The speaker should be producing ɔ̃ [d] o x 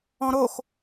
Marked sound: incorrect: ɾ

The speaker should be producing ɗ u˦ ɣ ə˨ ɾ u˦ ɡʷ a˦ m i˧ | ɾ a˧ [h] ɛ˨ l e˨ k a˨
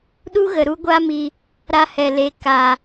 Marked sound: correct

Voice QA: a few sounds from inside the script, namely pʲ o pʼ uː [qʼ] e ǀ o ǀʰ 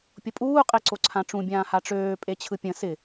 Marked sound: correct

